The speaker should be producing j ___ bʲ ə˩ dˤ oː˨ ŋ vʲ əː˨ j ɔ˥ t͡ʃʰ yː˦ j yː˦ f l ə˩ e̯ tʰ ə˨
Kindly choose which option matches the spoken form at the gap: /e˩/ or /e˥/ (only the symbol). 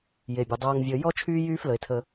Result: e˩